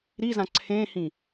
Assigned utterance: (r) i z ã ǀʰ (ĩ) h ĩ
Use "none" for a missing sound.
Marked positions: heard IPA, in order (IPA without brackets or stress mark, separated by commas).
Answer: ɾ, ẽ